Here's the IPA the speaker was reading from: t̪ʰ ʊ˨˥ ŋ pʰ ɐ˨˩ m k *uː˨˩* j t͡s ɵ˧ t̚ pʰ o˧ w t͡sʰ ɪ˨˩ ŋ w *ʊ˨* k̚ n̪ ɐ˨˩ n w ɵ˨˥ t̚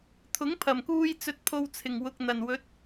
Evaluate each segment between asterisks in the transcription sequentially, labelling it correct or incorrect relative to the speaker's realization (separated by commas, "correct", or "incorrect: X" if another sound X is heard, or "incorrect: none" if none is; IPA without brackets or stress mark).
incorrect: uː˧, correct